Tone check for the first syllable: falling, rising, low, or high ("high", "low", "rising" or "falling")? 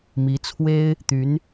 rising